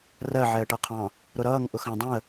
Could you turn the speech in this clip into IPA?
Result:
r ɜ ʕ ɛ ə̯ ʈ ʌ qʰ ɑ̃ | ɾ ʊ ɾ ʌː ŋ ʔ ʊ x ɑ̃ dˤ ũ ə̯

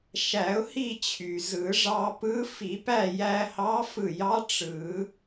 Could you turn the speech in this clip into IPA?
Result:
ʃ æ˨˩˦ ʊ̯ h i˥˨ t͡ɕʰ y˩ z ɯ˨˩˦ ʐ ɑ˧ p ɯ˧˥ f i˨˩˦ p æ˥˨ j æ˧ h ɑ˧˥ f ɯ˧˩ j ɑ˧˥ ʈ͡ʂ ɯ˨˩˦

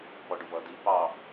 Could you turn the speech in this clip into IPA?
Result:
p ɔ ɖ ʊ v ʌ d i p ɑ

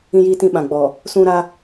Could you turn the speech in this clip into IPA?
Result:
ĩ˦ j iː˦ t ĩ˦ ɓ ã˨ ɡ͡b ɔ˨ | s ũ˦ ɾ a˦

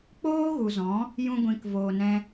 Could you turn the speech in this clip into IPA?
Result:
k͡p oː˦ ɣ u˨ z ɔ̃˨˦ | j ũ˧ ɡʷ ĩ˨ k v oː˨ n ɛ̃˧

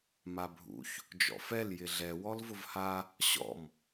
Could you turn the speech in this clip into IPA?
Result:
m a bʱ ṵ ç | d͡ʒ ɔ̰ f ɛ l j ɪ ɮ ɛ w ɔ l v ʊ v h a | ɕ ɔ̰ m

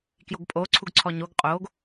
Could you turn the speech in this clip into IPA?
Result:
k j o ɡ pʼ o ǀʰ u ɡ ǀʰ ɔ ɲ o ɡ qʼ o ɡ

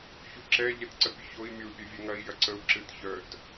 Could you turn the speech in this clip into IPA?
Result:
ç u ǁ ɛ ʎ ɛ t ǀ ə pʲ u ç o i̯ mʲ o u̯ pʲ œ vʲ ɛ ŋ ɐ i̯ j ɐ ǀ ə u̯ ǁ ɨ t ç œ t

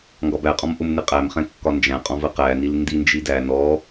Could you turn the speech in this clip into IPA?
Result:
ŋ ɡ ɒ b æ qʼ ɔ̃ m ʔ ʊ m n ɪ qʼ æ m χ ɛ̃ kː ɒ n d͡ʒ æ̃ qʼ ɔ̃ v ə q æ n i l n d i n d͡ʒ i d æ n ɔ

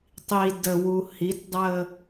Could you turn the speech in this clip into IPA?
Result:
tˤ i d ə w u h i t dˤ ə

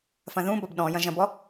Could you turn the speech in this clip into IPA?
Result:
f ɐ̃ ð ũ b ɒ b ɗ ɔ̃ j ɐ̃ ʒ ɐ̃ b ɔ

